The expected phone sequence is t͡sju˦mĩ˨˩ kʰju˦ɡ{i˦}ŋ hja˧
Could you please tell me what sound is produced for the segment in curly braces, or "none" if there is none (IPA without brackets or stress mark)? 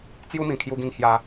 ĩ˦